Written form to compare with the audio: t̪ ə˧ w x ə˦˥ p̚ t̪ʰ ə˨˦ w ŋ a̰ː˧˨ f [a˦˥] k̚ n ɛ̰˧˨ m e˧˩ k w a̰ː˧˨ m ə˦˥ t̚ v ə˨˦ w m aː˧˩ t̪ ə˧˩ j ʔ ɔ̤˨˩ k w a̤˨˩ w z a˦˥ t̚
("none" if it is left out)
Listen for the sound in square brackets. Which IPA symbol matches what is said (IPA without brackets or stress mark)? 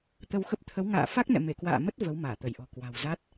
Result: a˦˥